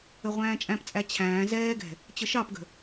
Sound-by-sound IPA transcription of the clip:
əʁʷæ̃ːt͡ʃʼæ̃pt͡sʼæ t͡ɕʰæ̃ː zɛːɡɛ̤ | t͡ɕəʃɑpɡə̤

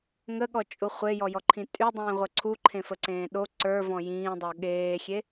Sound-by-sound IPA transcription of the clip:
ŋəɠɔt͡ʃʼu χʷejɔjɔǃʰĩ tʼydˤĩːʁʷə ǀʰuǃʰẽfəǀẽː ɗo ǀə˞vɔ̃ jĩːdˤo ɠeːxʲe

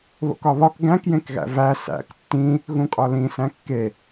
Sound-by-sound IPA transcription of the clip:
βo̰kɒβɒk ɡæ̃kjẽkɣæ̰ væ sæ̰k tːĩ | ɣũkʼɒlĩsæ̃ kːe

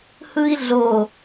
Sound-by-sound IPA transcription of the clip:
hɯi̯ɮo

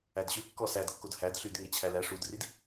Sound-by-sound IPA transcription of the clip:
ædɕʉ kːɔsædkːod hædɬyd ŋet͡ɕʰælæ ʂudrid

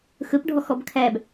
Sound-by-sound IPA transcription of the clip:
xɵpɖʱɔxɔb kʰæb

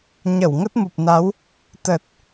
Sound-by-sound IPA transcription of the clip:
ɲə˧˩wŋə˦˥t̚mu˨˩p̚na˨˦w | t̪ə˨˩t̚

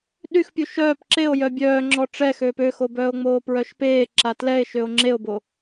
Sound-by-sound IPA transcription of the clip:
ɗyxpʲu ʃœːp ǁeo̯ jœbʲœː ŋ͡ǁɔʈ͡ʂɛxøːp øxo bœːo̯ŋ͡moːpɹœʃpeː ǁatlɛe̯ʃøo̯ ŋ͡ǁeo̯bo

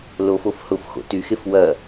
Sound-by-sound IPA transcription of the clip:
lofof hʊfxo̰ tyxef wɐ

